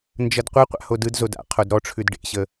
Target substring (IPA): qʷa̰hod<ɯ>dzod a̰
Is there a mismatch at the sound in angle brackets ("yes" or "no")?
no